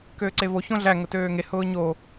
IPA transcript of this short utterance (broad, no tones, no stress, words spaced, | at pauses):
køːǀevo çõɮæ ŋʊtøːŋe hʊːɲo